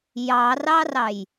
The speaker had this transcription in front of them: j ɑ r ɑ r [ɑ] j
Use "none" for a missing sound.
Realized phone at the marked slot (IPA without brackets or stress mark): ɑ